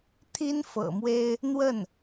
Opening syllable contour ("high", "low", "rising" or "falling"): high